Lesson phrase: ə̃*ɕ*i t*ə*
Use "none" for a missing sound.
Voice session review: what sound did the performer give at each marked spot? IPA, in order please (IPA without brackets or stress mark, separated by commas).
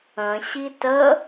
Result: ɕ, ə